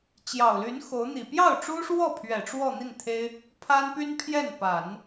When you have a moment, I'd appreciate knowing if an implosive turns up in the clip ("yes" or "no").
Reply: no